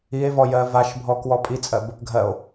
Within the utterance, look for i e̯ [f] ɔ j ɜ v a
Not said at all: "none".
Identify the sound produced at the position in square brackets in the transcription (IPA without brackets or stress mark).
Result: v